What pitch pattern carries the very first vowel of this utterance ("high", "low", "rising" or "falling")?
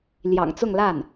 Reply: low